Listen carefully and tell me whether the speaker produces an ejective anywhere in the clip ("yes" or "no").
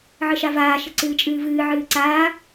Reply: yes